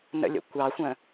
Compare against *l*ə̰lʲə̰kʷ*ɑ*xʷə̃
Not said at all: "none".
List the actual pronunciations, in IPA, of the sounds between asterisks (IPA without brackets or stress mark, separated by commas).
n, ɑ